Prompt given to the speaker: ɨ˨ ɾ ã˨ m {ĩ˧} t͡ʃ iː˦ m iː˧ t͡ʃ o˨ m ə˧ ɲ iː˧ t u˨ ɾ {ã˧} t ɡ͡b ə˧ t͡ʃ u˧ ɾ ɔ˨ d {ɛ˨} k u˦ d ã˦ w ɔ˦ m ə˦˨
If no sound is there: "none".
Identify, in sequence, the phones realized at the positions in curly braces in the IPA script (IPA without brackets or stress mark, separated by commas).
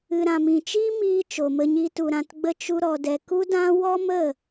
ĩ˨, ã˨, ɛ˨